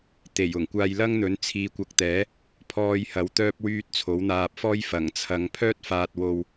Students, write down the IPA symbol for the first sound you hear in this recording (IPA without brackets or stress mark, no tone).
t̪